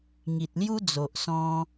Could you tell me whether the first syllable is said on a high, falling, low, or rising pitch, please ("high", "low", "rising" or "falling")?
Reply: low